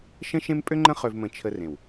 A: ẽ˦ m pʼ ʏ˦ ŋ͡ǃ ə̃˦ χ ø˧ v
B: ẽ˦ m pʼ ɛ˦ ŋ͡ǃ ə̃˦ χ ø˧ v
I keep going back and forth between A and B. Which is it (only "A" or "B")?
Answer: A